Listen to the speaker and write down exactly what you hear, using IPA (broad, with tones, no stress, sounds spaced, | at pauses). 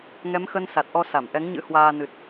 ŋ ɛ˨˦ m x ə˧ n s a˨˩ t̚ ʔ ɔ˧ s a˧˩ m ʔ ɛ˨˦ ŋ ɲ ɨ̰˧˥ h w aː˧ n ɨ˨˩ t̚